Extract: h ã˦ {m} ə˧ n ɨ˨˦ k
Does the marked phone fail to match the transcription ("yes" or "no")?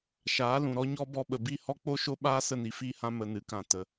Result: no